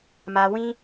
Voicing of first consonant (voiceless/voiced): voiced